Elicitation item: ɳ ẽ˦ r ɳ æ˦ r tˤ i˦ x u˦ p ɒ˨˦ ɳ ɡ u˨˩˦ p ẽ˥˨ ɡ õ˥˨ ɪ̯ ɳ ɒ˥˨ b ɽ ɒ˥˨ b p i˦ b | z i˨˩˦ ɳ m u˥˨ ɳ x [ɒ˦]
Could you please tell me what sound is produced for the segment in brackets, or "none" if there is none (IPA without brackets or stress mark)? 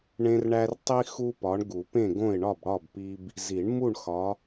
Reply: ɒ˨˦